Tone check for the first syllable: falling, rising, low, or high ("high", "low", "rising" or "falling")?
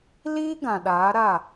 high